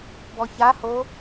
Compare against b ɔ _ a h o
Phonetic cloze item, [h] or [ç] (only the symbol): ç